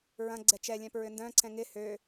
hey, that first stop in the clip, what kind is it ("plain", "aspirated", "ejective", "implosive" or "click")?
click